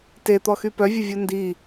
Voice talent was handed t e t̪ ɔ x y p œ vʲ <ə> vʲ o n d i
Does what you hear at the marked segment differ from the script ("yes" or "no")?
no